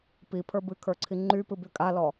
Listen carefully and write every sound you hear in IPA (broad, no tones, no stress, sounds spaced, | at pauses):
p i pʰ ə˞ b ɨ kʰ ə˞ ǀʰ i ŋ͡ǃ y p ɨ b y kʼ a l ɔ